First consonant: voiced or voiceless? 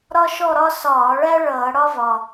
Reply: voiced